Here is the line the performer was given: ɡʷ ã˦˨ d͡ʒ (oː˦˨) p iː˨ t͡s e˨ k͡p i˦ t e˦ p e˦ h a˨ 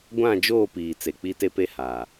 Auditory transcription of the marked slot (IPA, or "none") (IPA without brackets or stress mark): oː˦˨